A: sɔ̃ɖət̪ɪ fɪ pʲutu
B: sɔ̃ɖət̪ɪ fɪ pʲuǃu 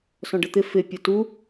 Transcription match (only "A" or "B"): A